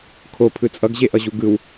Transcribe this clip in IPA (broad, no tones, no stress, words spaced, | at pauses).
kʰopʰɯ t͡sʼʌɡʑeʔʌʑu ɡɯw